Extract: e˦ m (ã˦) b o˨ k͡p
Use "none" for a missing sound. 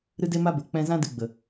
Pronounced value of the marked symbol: a˦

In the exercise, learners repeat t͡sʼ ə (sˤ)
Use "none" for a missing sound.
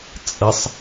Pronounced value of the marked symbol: sˤ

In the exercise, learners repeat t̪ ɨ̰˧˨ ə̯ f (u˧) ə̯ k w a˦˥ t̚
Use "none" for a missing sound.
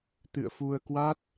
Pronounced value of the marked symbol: u˧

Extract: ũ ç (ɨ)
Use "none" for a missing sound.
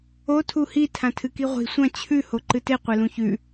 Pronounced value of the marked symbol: ʉ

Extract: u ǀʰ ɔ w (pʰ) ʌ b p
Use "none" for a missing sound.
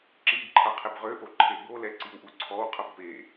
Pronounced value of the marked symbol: qʰ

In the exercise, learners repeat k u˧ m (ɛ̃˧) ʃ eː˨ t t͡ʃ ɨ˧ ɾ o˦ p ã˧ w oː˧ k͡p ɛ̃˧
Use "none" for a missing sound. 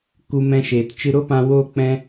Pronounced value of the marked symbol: ɛ̃˧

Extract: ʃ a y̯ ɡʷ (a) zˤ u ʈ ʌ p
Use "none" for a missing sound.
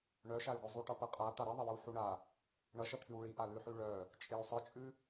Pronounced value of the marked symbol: ʌ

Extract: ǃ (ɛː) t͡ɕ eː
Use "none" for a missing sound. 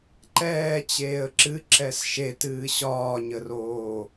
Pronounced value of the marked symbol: ɛː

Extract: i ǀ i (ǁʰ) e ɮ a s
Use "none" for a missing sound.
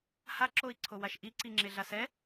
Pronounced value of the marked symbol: ŋ͡ǁ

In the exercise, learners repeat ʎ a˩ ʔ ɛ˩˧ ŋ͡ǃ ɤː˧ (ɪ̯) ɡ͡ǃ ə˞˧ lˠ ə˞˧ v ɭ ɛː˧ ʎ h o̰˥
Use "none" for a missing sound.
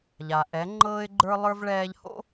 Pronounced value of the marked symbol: ɪ̯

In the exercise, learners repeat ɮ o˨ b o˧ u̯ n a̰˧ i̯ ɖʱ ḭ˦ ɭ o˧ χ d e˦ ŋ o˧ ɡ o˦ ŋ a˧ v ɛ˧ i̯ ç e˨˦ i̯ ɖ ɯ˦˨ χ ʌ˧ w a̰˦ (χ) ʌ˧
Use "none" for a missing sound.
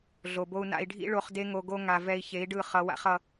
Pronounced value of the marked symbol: χ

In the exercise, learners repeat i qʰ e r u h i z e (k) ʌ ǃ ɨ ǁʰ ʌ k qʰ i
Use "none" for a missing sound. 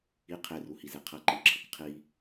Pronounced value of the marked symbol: qʰ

